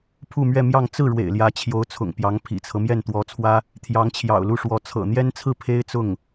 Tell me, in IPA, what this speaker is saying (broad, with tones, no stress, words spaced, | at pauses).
pʰu˥˧mɥɛ˥˧mjɑ˥˧ŋ t͡sɹ̩˥˩ ɻwḛ˨˩ɪ̯ljä˧˥t͡ɕʰjo˧˥ʊ̯t͡sʰʊ̰˨˩ŋ pjɑ˧˥ŋpʰḭ˨˩t͡sʰɤ˦ mjɛ˥˩nt̪wɔ˧˥t͡sʰwä˥ | t̪ʰjɑ˧˥ŋt͡ɕʰjɑ̰˨˩ʊ̯lu˥˩ʂwɔ˧˥ t͡sʰɤ̰˨˩n̪jɛ˥nt͡sʰɹ̩˥˩ pʰe˥ɪ̯t͡sʊ˥˩ŋ